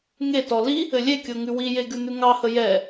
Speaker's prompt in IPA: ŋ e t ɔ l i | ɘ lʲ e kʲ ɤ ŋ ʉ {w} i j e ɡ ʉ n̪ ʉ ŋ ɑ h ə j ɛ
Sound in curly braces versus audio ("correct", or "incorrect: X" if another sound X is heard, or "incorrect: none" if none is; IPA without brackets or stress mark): correct